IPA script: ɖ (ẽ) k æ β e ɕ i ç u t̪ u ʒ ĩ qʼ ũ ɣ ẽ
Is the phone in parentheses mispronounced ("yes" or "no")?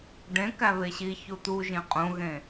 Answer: no